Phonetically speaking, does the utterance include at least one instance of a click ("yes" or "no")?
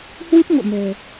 no